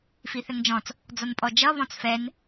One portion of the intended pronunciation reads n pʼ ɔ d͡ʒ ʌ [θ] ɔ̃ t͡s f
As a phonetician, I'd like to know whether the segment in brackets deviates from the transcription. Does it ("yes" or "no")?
yes